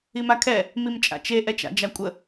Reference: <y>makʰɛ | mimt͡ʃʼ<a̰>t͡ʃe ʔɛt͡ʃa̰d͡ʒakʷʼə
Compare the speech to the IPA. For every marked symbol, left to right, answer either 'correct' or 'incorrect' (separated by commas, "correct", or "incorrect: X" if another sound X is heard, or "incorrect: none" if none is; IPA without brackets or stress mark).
incorrect: i, correct